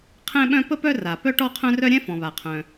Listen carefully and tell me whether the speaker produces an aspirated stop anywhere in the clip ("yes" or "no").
yes